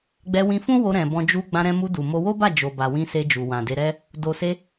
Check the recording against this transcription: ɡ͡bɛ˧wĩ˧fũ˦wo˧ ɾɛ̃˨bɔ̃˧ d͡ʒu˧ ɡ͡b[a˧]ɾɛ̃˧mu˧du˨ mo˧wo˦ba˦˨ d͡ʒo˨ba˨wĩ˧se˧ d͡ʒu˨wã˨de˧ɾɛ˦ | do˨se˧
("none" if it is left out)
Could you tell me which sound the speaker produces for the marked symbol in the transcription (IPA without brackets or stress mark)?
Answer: ã˧